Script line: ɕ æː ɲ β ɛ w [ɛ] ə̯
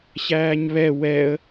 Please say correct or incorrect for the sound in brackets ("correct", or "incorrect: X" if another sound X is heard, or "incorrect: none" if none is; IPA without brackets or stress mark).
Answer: correct